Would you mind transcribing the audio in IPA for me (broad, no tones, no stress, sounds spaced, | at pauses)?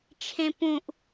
t͡ʃʰ ẽ p ũ ʔ